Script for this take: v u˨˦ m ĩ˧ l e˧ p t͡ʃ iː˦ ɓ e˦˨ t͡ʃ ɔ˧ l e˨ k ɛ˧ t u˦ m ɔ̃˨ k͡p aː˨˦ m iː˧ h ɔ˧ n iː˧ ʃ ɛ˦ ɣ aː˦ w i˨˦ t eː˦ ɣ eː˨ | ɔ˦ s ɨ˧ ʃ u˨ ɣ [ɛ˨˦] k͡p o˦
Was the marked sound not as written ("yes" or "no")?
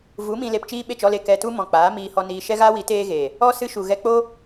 yes